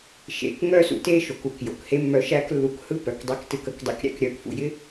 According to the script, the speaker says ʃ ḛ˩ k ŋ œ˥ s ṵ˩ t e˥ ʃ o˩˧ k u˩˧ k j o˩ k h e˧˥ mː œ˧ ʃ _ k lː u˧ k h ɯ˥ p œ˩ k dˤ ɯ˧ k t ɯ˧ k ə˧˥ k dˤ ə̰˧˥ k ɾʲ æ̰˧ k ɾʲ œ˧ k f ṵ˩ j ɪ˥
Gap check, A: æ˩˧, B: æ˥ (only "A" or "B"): B